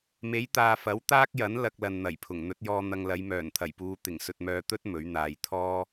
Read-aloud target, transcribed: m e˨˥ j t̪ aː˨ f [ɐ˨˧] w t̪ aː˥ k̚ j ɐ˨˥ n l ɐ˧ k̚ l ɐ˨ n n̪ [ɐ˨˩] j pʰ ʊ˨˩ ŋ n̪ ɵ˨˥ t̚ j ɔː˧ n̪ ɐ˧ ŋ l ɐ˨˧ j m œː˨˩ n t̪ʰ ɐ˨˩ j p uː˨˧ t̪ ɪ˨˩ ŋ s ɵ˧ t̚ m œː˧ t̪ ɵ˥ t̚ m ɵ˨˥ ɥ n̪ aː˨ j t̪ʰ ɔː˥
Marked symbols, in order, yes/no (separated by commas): no, yes